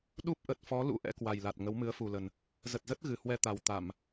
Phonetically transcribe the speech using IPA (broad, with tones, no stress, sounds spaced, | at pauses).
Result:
ɗ u˦˥ p̚ ʔ ə˨˩ t̚ f ɔ˨˦ l ṵ˧˥ ʔ ɛ̰˧˥ k w a˨˩ j l a˨˩ t̚ ŋ ə˨˦ w m ɨ˨˦ ə̯ f u˨˩ l ə˨˩ n | z ə˨˩ t̚ z ə˦˥ t̚ ɣ ɨ˨˩ h w ɛ˧ t̪ a˨˩ w t̪ a˧˩˨ m